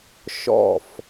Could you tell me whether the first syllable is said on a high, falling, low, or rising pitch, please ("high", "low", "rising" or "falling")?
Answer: falling